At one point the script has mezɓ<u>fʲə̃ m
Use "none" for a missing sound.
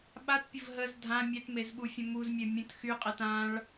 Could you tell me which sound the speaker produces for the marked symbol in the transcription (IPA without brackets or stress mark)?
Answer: u